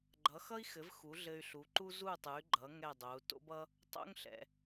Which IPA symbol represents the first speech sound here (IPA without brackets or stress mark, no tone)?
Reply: ɡ͡ǃ